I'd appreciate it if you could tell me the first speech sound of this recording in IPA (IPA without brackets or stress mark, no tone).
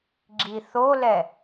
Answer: ɡ͡ǁ